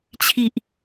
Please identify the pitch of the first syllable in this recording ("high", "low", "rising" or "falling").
low